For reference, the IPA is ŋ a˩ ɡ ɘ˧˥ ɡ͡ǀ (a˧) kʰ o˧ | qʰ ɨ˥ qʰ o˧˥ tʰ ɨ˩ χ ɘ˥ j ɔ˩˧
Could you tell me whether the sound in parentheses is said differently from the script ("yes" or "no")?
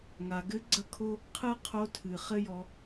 yes